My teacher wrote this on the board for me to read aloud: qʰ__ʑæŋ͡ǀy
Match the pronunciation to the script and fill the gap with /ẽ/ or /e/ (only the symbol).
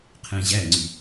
ẽ